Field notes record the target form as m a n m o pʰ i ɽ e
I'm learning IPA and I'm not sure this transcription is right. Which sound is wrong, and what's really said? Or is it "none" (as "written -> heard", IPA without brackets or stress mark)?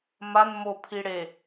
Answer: none